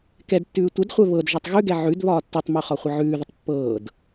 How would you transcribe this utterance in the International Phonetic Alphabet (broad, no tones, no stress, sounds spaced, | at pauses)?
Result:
k ɛ d tː ʉː tʷ ə d χʷ ɛ β ɤ d ʒ ɤ tˤ ɣ ʉ ɡ ɛ ʕ ʉ d β ɒː tː ʉ tˤ m ʉ χ ɒ χʷ ə ʕ ʉː ð ə tˤ pː ɤː d